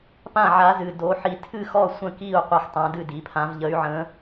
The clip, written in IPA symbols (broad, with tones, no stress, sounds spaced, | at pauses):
p ã˥˨ ʕ a˧˥ z ɨ˩˧˩ d o˧˥ ħ i˧˥ tʰ ɨ˥˨ x ɔ˥˨ sʷ ə̃˥˨ k i˥˨ u̯ qʷ e˥˨ x tˤ ã˧˥ d ɨ˥˨ d i˩˥ pʰ ã˧˥ v ʎ ə˧˥ y̯ ʕ ə̃˧˥